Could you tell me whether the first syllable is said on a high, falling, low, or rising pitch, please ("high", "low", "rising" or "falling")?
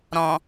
low